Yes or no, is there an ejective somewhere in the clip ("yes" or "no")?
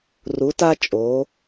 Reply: yes